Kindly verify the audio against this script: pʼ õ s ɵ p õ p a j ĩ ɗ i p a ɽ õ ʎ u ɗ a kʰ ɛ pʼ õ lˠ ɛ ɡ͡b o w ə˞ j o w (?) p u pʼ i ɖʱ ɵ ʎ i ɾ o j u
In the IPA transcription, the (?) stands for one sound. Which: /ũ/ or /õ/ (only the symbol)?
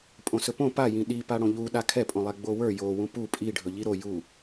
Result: ũ